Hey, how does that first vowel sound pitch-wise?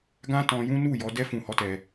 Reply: high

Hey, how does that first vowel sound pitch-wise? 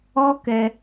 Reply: high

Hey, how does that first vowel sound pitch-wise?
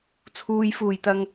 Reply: low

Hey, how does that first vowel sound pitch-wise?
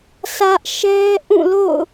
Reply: high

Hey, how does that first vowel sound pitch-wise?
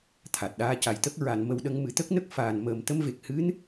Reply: low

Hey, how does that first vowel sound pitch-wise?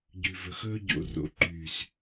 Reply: low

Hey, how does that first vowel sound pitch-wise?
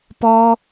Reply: high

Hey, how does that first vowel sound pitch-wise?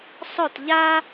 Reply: falling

